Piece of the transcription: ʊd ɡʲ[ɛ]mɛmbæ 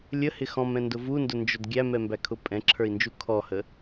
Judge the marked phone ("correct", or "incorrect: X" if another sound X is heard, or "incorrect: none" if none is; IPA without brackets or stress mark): incorrect: æ